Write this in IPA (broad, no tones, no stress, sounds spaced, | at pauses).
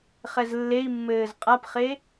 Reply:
χ ɛ z lː e i̯ mː ɘː z qʼ a p χ e